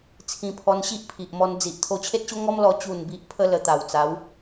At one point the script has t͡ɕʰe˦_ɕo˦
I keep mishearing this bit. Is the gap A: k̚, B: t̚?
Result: B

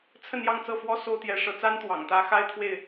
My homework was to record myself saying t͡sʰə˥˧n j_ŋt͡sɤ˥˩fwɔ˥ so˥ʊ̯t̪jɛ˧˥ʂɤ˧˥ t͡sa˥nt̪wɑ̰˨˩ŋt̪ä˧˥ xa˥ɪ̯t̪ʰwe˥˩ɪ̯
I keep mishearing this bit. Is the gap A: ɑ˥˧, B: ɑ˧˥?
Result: A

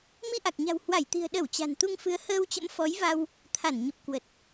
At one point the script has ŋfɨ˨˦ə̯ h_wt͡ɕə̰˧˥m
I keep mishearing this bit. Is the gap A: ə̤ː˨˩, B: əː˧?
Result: B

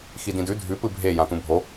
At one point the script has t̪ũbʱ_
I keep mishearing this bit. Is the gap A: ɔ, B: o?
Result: B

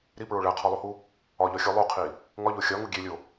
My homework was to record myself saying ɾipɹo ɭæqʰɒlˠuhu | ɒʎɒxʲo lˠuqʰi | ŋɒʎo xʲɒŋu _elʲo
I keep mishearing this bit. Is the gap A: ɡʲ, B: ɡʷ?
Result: A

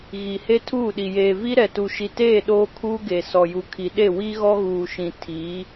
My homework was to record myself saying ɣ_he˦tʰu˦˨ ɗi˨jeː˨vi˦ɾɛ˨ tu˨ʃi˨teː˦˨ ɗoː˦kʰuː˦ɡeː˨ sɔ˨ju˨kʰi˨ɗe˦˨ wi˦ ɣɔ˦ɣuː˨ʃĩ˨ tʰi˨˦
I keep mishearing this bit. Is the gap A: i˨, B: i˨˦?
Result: A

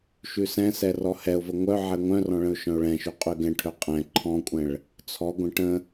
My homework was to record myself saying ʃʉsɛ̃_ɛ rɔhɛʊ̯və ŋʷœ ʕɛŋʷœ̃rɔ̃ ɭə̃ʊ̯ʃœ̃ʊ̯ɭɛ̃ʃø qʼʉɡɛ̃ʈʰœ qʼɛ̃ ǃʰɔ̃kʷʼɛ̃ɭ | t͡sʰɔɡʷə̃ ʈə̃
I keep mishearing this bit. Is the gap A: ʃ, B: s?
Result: B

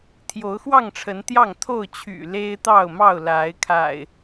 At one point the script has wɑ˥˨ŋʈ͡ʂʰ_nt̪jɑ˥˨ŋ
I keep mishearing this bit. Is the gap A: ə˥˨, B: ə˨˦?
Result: B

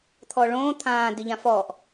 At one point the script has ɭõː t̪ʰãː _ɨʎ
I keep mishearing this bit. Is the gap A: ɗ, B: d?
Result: B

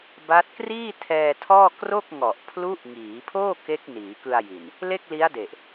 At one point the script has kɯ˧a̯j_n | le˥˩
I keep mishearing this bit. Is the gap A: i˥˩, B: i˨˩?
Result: B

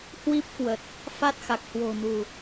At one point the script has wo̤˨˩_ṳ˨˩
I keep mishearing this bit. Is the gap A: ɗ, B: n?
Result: B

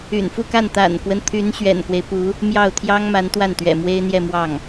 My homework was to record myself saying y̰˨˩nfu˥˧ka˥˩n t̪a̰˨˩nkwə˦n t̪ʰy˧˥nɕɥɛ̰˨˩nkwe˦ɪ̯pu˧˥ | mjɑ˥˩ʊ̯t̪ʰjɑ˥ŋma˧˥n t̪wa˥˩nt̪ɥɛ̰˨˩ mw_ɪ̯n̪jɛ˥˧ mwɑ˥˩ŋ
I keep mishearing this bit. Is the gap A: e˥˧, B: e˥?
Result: B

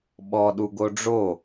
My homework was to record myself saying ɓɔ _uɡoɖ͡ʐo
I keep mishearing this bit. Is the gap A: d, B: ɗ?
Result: B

